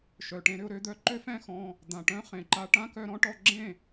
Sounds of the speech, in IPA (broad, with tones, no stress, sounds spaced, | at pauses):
ʃ œ˨ ʈ ẽ˧ ɾ ʏ˧ ʊ̯ ɾ ø˧ d̪ œ˦ ǃ ø˦ f ɛ̃˧ x ɔ̃˧ | d̪ ã˨ ʈ œ̃˦ χ ẽ˨ ǃ a˧ ʈ ã˦ k œ˧ ɾ ɔ̃˦ ʈ ɔ˧ ɡ͡ǁ ẽ˦˨